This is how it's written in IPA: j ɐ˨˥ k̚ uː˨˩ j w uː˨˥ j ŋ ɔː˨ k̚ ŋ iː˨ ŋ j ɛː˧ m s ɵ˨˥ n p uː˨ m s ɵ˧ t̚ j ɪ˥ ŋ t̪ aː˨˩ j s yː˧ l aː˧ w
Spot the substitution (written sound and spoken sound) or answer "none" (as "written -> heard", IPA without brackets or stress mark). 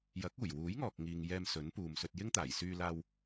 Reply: none